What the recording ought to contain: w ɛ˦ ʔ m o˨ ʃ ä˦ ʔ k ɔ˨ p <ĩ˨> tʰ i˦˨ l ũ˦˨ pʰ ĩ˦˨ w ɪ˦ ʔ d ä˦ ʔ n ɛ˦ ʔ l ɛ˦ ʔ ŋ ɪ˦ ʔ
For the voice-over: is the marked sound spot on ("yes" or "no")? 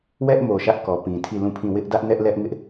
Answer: yes